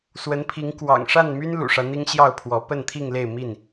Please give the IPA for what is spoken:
s w ə˨˦ n pʰ i˨˦ ŋ k w ɑ̰˨˩ ŋ ʂ a˥˨ n m y˦ n l ṵ˨˩ ʂ ä˦ n̪ i˦ ŋ ɕ j ɑ˥˨ ʊ̯ pʰ w ɔ˨˦ p ə˥˨ n t̪ʰ i˥˨ ŋ l e˥˨ ɪ̯ m i˥˨ n

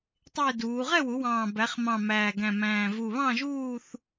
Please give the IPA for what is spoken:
tˤ ɪː˥˧ d uː˩˧ ʁ ɛ˥˧ w u˩˧ w ɑ̃ː˨˩ b æ˩˧ χ m ɑ̃˨˩ m æː˨˩ ɡ æ̃˨˩ m æ̃ː˨˩ v u˨˩ β ɑ̃˥˧ ʒ uː˥˧ θ

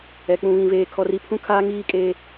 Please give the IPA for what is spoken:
ɛ˨ k͡p ũ˨ β ĩ˨ v eː˨ kʰ ɔ˨ r i˨ pʰ ũ˦ kʰ aː˦ ŋ iː˦ kʼ eː˦

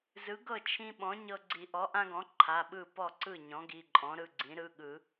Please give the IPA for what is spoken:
z ɯ˩˥ ɡ ɤ˥˩ t͡ʃʰ ĩ˦ ɓ ɔ̃˩˥ ɲ ɤ˦ ɡ͡ǀ i˨˩˦ ʔ ɔ˩˥ ʔ ã˦ ɡ ɔ̃˩˥ ǃʰ a˩˧˩ ɓ ɯ˥˩ p ɔ˥˩ ǀ ɯ˥˩ ɲ ɔ̃˩˥ ɡ i˩˧˩ ǃʼ ɔ̃˩˥ ɾ ɯ˩˧˩ ɡ͡ǀ ĩ˩˥ ɾ ɯ˩˧˩ ɠ ɯ˨˩˦

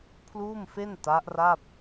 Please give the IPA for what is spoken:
pʰ l uː˥˩ m f e˥˩ n t a˦˥ ʔ r a˥˩ p̚

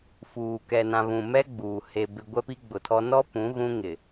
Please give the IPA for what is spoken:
f uː˨ k ɛ˨ n ã˨ β ũ˨ m ɛ˦ ɡ͡b uː˨ h e˨ b ɪ˨ ɡʷ ɛ˦ p i˦ ɡ͡b ʊ˨ tʰ ɔ˦ n ɔ˦ p ũ˨˦ ɣ ũ˦ ŋ ɪ˨

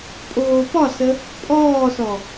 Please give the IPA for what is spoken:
pʼ oː p ɒ s ə | pʼ ɔː s ɔ

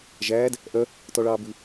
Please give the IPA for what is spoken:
ʒ æː d | ʔ œ | t ɔ ɭ ɑː b ʉ

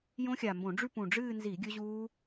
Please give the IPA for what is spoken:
j õ˦˥ xʲ a˨˩ m b õ˧˩˧ ɖ͡ʐ ʉ˥˧ p ũ˨˩ ɖ͡ʐ ɨː˥˧ n z i˧˩˧ ɡʲ ɵ˦˥ ʑ uː˦˥

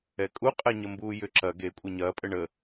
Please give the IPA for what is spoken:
ɛ kʼ u qʼ ɛ ɲ ə m b uː j ʏ ǁ ɐ ɡ e kʷʼ ɛ ɲ ɐː pʼ ə ɳ ə

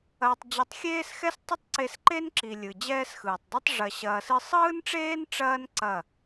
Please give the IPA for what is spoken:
ɐː˧ tˤ d͡ʑ ɨ˧ tˤ xʲ eː˦ s x ɛ˦ s tˤ ɪ˦ tˤ ǀ e˧ s ǃ e˦ n ǁ i˨ lʲ ɯ˨ d͡ʑ ɛː˦ s x ɯː˨ tˤ dˤ i˦ tˤ ʐ ɐ˨ ɕ ɐː˨ s ɨ˧ sˤ ɯː˦ n ʈ͡ʂ eː˦ n ʈ͡ʂ ɐː˦ n ǀ ɐ˦˨

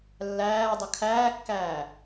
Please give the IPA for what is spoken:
lː æː dˤ ə kʰ æː kː æː

